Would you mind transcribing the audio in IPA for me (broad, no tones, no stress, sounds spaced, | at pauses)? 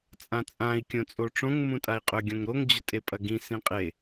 t͡sʼ ã t͡sʼ ã i̯ kʲ õ t͡sʼ o ʈ͡ʂ õ ŋ m ũ tʼ a i̯ qʼ ɵ ɡʲ õ ŋ ɾ o ŋ d͡ʑ ɵ tʼ e pʼ ɐ ɡ ĩ s ĩ qʼ e